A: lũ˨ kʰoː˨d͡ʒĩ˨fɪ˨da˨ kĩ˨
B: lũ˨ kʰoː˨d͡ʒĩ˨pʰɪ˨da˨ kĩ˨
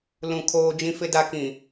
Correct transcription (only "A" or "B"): A